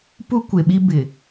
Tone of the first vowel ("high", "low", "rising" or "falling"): high